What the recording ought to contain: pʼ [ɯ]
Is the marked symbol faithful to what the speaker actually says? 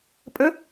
no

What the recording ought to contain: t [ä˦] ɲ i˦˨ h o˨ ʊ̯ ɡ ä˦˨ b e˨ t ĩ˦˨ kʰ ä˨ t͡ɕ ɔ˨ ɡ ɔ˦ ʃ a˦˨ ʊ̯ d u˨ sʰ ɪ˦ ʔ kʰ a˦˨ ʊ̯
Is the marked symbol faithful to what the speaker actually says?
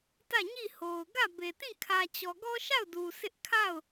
no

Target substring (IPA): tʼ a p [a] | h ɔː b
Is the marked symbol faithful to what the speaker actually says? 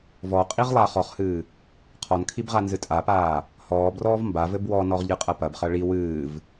no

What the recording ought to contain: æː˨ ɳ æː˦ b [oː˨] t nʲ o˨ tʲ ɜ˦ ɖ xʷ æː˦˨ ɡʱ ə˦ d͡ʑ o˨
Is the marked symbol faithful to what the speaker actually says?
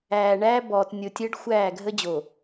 no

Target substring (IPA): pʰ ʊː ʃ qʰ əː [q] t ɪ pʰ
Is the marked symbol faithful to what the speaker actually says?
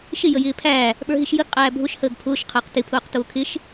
yes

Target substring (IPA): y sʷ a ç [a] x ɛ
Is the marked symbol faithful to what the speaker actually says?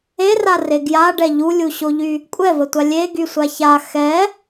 yes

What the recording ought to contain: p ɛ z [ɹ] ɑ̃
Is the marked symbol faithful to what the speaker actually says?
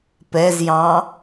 no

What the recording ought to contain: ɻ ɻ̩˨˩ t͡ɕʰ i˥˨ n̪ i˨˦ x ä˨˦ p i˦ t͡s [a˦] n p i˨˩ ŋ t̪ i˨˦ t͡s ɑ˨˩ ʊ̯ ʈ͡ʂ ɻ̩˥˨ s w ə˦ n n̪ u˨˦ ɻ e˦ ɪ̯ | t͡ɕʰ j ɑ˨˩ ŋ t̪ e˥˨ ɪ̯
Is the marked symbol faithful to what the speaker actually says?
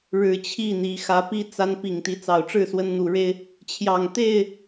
yes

